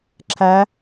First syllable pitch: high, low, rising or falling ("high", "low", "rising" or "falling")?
rising